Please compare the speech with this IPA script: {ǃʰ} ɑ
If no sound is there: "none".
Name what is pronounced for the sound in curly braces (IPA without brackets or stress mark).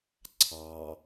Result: ǀʰ